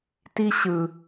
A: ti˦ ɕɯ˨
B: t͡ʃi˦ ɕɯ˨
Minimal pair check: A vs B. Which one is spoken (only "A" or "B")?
A